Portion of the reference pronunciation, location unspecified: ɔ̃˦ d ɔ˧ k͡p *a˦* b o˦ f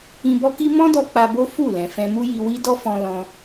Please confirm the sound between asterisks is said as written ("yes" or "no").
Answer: no